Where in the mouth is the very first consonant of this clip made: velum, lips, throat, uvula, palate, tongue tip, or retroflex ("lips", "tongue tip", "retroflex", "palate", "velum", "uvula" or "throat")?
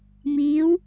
lips